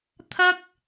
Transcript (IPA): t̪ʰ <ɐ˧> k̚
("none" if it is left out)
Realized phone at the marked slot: ɐ˥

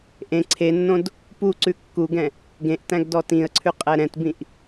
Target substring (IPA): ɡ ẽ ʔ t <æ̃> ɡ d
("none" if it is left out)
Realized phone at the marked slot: æ̃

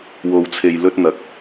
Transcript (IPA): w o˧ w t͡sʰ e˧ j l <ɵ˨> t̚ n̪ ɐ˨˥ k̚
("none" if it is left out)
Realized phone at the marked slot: ɵ˥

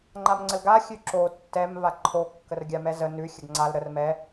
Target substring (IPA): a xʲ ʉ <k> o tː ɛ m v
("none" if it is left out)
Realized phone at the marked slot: ǁ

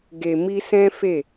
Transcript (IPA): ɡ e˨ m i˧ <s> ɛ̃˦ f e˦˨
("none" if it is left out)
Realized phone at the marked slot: s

